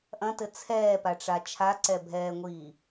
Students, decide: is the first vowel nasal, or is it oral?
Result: nasal